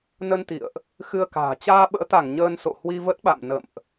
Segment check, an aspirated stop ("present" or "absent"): absent